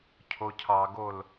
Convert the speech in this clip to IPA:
cʰ o cʰ ɑ ɡ o l

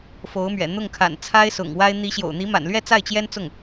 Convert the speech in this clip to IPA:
f o˧˥ ʊ̯ m ɥ ɛ̰˨˩ n̪ ʊ˥˩ ŋ kʰ a̰˨˩ n t͡sʰ a˥ ɪ̯ s ʊ̰˨˩ ŋ w a˥ ɪ̯ n̪ i˧˥ ɕ j o̰˨˩ ʊ̯ n̪ i˧˥ m a̰˨˩ n l ɥ ɛ˥˧ t͡s a˥˩ ɪ̯ t͡ɕ j ɛ˥ n t͡s ʊ˥˩ ŋ

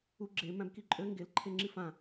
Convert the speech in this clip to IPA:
u ɡ͡ǁ e m æ̃ b k i ǃʼ ø ŋ ɡ e l ǃʰ e ŋ͡ǁ i f ã

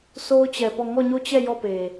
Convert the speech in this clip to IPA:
s o˦ ʊ̯ t͡ɕ ɛ˨ p ɔ˦˨ ŋ ɔ˦˨ ɲ o˦˨ t͡ɕ ɛ˦˨ j ɔ˦˨ p e˨

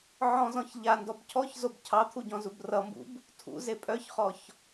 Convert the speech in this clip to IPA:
ʕ ɔ̃ z ɔ̃ ç ʎ a n d ɔ b cʰ ɔ ç z o b cʰ ɑ t̪ʰ u ɟ ɔ̃ z u b r ʌ m b ṵ b | tʰ ṵ z e pʼ œ ç χ ɔ ç

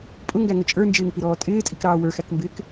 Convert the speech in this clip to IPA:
pʼ ʊ ŋ ɡ æ ŋ ə t͡ʃʼ ə˞ n d͡ʒ ɪː ŋ p i ɾ ɔː tʼ ɪː tʼ i k ɾ ɑː w ə˞ x æ k m b ɪː k

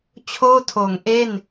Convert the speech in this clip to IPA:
t͡ɕʰ oː˥˩ tʰ oː˩˦ ŋ ʔ e˥˩ n

